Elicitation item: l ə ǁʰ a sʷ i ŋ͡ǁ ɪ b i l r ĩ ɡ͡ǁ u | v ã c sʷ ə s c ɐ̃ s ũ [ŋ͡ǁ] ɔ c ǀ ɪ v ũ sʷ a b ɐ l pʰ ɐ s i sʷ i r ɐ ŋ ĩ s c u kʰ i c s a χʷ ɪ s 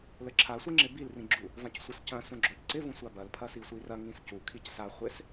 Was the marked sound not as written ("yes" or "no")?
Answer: yes